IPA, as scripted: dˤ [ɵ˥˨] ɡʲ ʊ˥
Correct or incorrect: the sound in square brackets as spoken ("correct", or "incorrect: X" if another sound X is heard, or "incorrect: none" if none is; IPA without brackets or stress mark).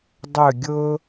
correct